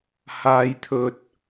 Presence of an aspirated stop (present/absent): present